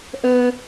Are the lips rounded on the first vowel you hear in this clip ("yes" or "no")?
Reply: no